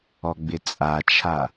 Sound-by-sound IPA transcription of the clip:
ɔɡ͡bɪt͡sʼat͡ʃʰa

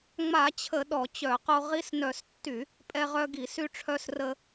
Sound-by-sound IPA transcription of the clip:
ŋ͡ma˧˩˧t͡ɕʰə˧˩˧ ɗɔ˧˩˧t͡ɕœ˧˩˧qo˧ ʁi˧snœ˧˩˧s tːy˧˩˧ | pʼɛ˧ʁœ˧ɡi˧˩˧ sy˧ʈ͡ʂʰœ˧s rə˧

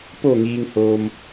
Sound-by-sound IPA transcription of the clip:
po˧˩ŋiː˩ŋhoː˩m

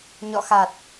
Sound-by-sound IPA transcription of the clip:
ɲɔ̰˧˨xa˨˩t̚

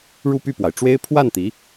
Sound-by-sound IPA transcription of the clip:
ɻu˥˧py˥˩pwa˩ɪ̯ʈ͡ʂwe˥ɪ̯ pʰwa˥˩n t̪i˧˥

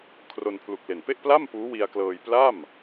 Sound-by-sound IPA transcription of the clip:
kʰro˧npʰlu˨˩k̚le˨˩n pe˥˩ʔpla˥˩m puː˦˥wi˧a̯klɤː˧j pla˥˩m

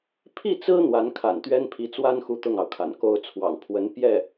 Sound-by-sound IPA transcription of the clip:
pʰi˥˩t͡sɹ̩˥ n̪wa˧˥nkʰa̰˨˩nt̪ɥɛ˥n pʰi˧˥t͡swa˥nxu˧˥ t̪ʊ˥˩ŋɑ˩ʊ̯kʰa̰˨˩n ko˥ʊ̯t͡sʰwɑ̰˨˩ŋpʰwə˧˥n pjɛ˥˩

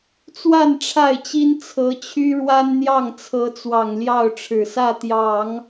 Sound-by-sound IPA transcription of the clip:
t͡swa˥˧n ʈ͡ʂʰa˥˩ɪ̯t͡ɕi˥n t͡sʰɤ˧˥t͡ɕʰy˥ɻwa˥n n̪jɑ˥˩ŋt͡sʰɤ˧˥t͡swɑ˨˩ŋ ljɑ˥˩ʊ̯ʈ͡ʂʰɻ̩˨˩sä˥˩t̪jɑ˨˩˦ŋ

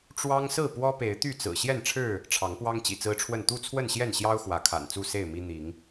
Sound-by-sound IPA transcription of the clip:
ʈ͡ʂwɑ˦ŋsɹ̩˥˨ pwɔ˦pe˨˦ɪ̯ t̪y˥˨t͡sɹ̩˨˩ ɕjɛ˥˨nʈ͡ʂʰɻ̩˥˨ | ʈ͡ʂʰɑ˨˦ŋpwɑ˦ŋ t͡ɕḭ˨˩t͡sɹ̩˦ʈ͡ʂʰwə˥˨n t̪u˥˨t͡sʰwə˥˨nɕjɛ˥˨nɕjɑ˦ʊ̯ xwä˨˦kʰa̰˨˩nt͡su˥˨ se˥˨ɪ̯mi˦ n̪i˨˦ŋ

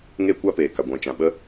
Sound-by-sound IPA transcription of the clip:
ŋeː˦kʷa˦peː˨ka˨ ɡʷɛ̃˨t͡ʃã˨ɓə˦

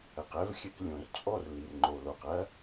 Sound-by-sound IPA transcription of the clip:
ɐ˨q ɛ˦v xʲɘ˨k lʲõ˨r t͡sʼɔ˦˨r li˨rŋ͡ǃo˨lo˨q ɐ˦

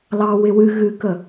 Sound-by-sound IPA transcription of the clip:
lɑ wɪwɨ ɣɨkə

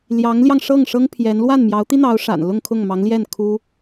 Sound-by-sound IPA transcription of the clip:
ljɑ˧˥ŋljɑ˧ŋʂɤ˥˩ŋ ʂɤ˥ŋpʰjɛ˧˥n lwa˥˩nmjɑ˧˥ʊ̯t̪i˥n̪ɑ˧˥ʊ̯ ʂa̰˨˩n lʊ˥˧ŋkʰʊ˥˩ŋmɑ˧˥ŋljɛ˥˩n kʰu˥

